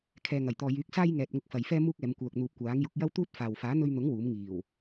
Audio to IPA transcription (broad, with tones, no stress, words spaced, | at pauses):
kʰɛː˨ŋɐ˨˩jt̪ɔː˨ jyː˨˥k̚saː˥j ŋɛː˨t̚ŋʊ˧k̚fɐ˨j fɛː˥muː˥k̚ɛː˨˧mkʷœː˨k̚ n̪uː˨p̚kʷaː˨˥ŋjʊ˨˥k̚ jɐ˥wt̪uː˥t̚faː˨w faː˨˥n̪ɵ˧ɥn̪ʊ˨˥ŋ wuː˨˥m ŋiː˨˩w